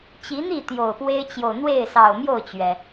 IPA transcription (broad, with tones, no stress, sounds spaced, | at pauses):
t͡ɕ i˨˦ n̪ i˥˨ t̪ j o˨˩ ʊ̯ p w e˦ ɪ̯ t͡ɕ j o˨ ʊ̯ n̪ w e˥˨ ɪ̯ s ɑ˨˩ ʊ̯ m j o˥˨ ʊ̯ t͡ɕ ɥ ɛ˩